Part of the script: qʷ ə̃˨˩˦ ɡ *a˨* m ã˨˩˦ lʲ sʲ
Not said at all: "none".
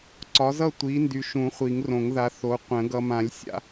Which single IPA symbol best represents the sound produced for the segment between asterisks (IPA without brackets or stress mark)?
ʌ˨